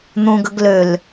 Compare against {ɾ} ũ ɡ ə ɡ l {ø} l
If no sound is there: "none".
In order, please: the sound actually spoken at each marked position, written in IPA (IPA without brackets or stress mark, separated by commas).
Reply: n̪, ø